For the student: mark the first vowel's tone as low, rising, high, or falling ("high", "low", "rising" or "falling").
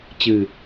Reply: low